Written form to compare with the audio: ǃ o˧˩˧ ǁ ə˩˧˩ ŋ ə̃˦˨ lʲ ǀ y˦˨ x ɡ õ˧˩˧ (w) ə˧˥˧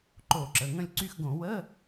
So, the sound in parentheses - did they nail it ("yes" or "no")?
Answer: yes